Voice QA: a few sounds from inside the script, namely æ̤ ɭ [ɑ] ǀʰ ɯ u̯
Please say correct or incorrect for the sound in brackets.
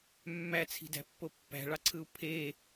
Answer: correct